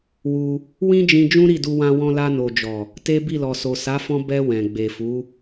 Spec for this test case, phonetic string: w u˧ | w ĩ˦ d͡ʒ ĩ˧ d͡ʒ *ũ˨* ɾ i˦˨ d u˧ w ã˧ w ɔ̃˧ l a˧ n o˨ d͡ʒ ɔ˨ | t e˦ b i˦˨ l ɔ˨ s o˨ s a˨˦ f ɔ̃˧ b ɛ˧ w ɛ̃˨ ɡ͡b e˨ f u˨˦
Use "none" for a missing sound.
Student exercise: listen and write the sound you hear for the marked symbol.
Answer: ũ˦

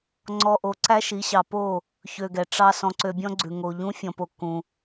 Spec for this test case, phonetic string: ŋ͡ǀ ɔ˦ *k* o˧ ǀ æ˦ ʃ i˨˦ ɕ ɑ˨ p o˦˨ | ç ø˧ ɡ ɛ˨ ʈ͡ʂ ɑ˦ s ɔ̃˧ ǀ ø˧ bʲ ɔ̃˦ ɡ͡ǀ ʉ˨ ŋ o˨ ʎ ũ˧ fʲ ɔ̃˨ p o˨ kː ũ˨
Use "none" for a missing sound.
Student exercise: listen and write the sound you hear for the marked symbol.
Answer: ʔ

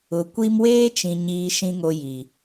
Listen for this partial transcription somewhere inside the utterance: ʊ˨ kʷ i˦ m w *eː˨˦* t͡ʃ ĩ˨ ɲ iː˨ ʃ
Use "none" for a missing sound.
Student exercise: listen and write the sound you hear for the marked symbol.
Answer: eː˦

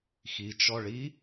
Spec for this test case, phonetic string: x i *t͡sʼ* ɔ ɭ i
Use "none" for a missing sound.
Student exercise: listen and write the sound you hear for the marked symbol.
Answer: t͡ʃ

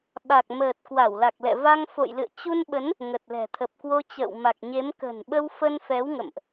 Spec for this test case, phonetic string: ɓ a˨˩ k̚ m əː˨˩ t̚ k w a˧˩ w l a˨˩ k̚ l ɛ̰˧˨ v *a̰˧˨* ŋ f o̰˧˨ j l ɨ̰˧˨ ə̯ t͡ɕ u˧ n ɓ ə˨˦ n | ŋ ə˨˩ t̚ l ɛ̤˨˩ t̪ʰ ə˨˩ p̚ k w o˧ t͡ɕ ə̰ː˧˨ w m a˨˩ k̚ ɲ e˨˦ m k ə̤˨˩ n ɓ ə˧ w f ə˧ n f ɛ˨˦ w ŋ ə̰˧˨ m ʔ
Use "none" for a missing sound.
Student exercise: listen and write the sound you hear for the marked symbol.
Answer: a˧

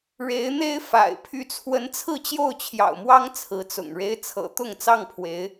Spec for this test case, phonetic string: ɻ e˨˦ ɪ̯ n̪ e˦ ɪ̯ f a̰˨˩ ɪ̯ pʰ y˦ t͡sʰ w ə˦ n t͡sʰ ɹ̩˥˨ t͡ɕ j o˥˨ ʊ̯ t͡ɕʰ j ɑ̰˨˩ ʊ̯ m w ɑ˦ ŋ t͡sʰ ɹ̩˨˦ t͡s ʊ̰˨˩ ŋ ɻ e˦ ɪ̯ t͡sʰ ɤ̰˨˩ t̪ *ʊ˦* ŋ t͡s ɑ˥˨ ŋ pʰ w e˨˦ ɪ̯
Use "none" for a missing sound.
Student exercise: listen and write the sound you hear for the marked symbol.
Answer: ʊ˥˨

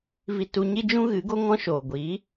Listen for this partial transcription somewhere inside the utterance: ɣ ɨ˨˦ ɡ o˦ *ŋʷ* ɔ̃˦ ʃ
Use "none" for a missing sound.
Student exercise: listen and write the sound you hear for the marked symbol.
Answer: ŋ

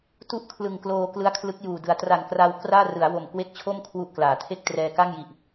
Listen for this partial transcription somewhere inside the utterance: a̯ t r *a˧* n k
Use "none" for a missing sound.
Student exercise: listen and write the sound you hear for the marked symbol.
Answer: a˨˩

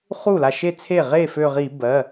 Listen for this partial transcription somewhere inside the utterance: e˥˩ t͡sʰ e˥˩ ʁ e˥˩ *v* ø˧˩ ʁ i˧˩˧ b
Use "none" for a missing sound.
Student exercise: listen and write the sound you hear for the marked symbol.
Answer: f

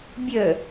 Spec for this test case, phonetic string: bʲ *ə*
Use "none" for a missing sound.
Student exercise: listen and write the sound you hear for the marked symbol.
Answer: ə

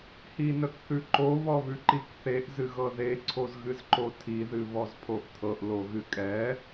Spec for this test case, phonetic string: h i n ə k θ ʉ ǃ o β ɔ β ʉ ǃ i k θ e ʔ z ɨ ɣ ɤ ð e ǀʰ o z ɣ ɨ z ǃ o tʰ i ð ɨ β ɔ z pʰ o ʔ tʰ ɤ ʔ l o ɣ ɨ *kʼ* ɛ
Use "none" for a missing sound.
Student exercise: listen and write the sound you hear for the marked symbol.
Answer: kʼ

